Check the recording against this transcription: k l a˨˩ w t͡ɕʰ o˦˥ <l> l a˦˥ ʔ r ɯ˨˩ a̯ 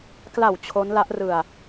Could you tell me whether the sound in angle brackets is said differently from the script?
yes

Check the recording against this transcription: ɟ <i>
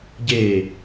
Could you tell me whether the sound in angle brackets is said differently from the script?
yes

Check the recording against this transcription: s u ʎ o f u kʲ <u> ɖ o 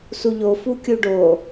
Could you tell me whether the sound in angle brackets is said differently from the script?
no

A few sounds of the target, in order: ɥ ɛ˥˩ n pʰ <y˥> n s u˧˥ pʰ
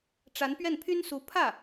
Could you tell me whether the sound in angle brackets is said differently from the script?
no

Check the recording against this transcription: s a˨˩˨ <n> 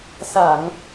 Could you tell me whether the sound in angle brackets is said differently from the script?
yes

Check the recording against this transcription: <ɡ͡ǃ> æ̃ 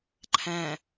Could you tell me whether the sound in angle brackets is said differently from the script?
yes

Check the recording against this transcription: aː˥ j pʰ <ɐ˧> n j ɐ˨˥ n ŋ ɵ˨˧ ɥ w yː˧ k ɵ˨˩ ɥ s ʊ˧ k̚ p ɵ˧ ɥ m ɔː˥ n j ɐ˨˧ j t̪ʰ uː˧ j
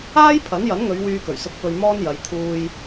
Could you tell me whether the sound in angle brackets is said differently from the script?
yes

